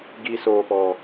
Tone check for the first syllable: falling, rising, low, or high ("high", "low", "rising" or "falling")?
low